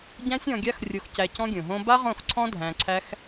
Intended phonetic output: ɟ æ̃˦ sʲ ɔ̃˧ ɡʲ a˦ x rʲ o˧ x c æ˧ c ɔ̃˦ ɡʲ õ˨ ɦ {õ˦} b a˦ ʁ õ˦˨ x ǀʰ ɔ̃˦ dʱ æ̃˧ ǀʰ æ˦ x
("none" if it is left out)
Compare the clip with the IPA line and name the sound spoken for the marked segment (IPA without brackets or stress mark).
õ˦